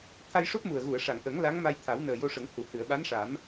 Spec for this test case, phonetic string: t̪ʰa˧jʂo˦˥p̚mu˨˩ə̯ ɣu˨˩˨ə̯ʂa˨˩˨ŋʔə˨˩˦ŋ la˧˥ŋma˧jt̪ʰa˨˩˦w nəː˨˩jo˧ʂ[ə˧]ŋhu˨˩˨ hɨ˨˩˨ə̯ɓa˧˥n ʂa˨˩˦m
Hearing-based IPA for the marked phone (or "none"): ə˨˩˦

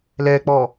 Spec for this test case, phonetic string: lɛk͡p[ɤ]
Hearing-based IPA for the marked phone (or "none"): ɔ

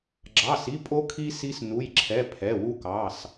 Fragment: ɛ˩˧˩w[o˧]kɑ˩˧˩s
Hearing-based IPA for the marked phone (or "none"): u˧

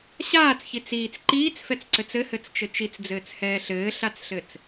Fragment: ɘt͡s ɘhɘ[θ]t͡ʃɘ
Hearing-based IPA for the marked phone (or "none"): t͡s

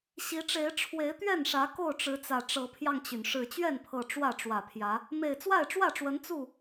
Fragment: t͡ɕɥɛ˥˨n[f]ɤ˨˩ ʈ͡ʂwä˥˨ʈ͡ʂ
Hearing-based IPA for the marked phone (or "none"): pʰ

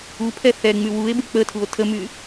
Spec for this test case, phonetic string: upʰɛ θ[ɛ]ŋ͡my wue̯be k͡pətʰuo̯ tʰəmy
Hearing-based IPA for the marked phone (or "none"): ɛ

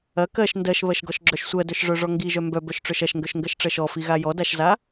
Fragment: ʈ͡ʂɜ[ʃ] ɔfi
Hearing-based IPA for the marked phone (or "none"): ʃ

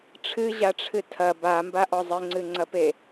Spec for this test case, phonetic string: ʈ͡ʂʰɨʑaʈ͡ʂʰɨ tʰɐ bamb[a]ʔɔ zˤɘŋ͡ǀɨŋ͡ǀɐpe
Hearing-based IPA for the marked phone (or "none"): a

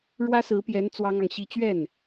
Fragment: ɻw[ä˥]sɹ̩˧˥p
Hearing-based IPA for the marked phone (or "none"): ä˥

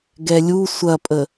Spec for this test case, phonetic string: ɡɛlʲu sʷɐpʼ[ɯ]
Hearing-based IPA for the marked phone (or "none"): ə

